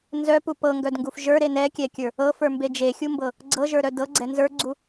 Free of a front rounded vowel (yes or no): no